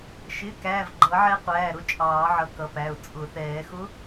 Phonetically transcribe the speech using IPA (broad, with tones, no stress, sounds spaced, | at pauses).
ʃ ɪ˩˧˩ k æː˩˧˩ v ɡ͡ǃ ʌː˨˩˦ ʕ ɛː˧˥ qʷ æː˩˧˩ ɾ ʊ˧˥ t͡ʃʼ ɑː˨˩˦ ʕ ʌ˩˧˩ k ʌ˩˧˩ p æ˩˧˩ ʊ̯ t͡sʼ ʊ˨˩˦ θ ɛː˨˩˦ x ʊ˧˥